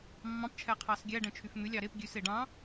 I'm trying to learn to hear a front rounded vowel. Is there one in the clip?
yes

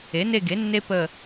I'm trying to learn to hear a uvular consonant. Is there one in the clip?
no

